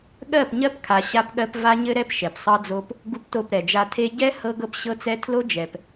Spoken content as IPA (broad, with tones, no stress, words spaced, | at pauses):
ɠɜ˦˨pɲɜ˦pkʰa˨ ɕa˦pɠɜ˦p va˦ɲɘ˦ɾɛ˦p ʃɛ˨psˤɤ˦d͡zo˦p | ɡu˦pto˦˨pɾɛ˨d͡ʒa˦ tʰe˦ ɟɛ˦ hɤ˦ɡɤ˦pɕɤ˦t͡sɛ˦ tʰlo˦d͡ʒɛ˨p